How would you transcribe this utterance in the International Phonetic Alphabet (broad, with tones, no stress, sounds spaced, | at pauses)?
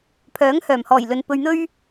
pʰ œː˨˥ ŋ h œː˨˩ m h ɔː˨˩ j l ɵ˨ n p ɵ˧ ɥ n̪ ɵ˥ ɥ